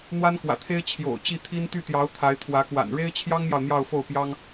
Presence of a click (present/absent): absent